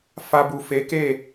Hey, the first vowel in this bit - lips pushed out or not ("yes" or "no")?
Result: no